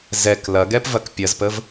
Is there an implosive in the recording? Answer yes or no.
no